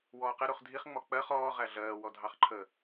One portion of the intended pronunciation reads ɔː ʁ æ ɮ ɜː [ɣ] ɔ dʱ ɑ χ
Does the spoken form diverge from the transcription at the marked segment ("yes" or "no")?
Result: yes